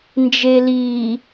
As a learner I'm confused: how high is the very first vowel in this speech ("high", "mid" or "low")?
mid